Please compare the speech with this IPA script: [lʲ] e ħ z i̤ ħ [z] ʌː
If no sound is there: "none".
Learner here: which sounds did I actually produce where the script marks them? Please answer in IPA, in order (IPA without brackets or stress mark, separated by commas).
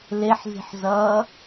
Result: l, z